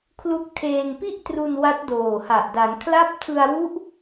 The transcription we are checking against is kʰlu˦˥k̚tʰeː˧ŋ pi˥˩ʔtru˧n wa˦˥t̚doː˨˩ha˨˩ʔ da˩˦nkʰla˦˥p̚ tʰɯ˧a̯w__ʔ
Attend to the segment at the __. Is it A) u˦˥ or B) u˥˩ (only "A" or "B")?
A